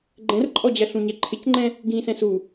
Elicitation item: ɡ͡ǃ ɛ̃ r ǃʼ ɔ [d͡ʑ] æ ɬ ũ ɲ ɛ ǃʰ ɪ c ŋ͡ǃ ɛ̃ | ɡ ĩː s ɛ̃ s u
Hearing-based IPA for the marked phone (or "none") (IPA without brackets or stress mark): d͡ʑ